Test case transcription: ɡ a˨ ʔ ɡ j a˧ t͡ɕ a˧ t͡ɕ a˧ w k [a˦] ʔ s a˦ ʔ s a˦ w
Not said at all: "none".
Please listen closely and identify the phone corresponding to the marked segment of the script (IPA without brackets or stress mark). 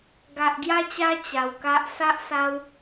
a˦